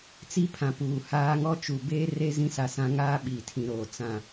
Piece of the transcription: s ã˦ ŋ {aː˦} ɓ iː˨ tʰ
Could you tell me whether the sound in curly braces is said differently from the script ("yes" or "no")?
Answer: no